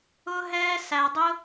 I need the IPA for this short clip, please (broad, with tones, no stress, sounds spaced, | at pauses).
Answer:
ʊː˥ ɦ ɛː˥ s æ˧ dˤ ʊ˥